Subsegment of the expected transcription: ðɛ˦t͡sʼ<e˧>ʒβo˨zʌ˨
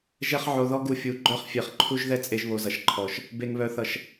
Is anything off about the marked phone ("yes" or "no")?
no